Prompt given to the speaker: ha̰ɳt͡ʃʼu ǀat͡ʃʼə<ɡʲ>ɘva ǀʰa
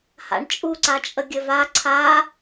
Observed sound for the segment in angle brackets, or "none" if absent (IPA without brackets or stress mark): ɡʲ